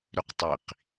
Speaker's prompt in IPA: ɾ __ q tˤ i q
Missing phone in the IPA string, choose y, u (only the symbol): y